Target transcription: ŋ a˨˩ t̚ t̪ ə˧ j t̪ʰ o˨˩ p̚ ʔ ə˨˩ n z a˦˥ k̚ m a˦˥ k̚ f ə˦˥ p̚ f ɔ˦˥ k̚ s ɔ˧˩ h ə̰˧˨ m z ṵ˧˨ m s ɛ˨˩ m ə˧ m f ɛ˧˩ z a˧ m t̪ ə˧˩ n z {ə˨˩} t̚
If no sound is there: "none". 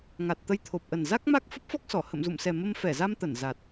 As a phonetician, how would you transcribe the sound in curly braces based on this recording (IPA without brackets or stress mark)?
a˨˩